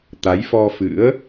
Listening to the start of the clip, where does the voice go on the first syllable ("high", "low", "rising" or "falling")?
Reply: rising